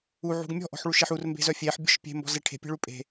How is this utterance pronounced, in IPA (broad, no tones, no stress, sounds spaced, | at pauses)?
u ʕ ṳ ɡ mʲ ɔ̤ ʔ ɔ̤ ħ ɭ u ʃ e ħ u r m b e̤ z œ fʲ e ħ bʲ ɔ̤ ʃ pʲ e̤ m b ɔ̤ z e ʈʰ e̤ pʲ e̤ ɭ u pʼ e̤